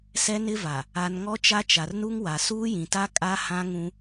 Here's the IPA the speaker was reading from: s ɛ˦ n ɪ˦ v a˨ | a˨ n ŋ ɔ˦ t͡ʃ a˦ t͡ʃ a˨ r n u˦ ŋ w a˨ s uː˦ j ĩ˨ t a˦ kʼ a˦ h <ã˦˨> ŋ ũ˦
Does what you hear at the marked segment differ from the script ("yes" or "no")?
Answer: yes